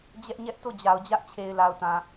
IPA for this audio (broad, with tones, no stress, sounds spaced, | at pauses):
d͡ʑ ɛ˦ ʔ ɲ ɛ˦ ʔ t o˦˨ d͡ʑ a˨ ʊ̯ d͡ʑ ä˦ ʔ t͡ɕʰ e˨ ɪ̯ l a˨ ʊ̯ t ã˨